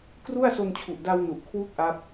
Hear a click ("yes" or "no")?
no